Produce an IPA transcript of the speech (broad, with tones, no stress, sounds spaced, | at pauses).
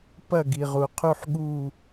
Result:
p ɐ˦˨ ɡ i˩ ʁ u˩ qʰ u˦˨ ħ ɠ u˦˨